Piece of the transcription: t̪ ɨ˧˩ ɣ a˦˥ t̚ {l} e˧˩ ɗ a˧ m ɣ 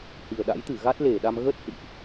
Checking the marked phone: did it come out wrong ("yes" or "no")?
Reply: no